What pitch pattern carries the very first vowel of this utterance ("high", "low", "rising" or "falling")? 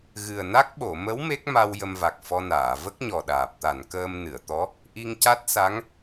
low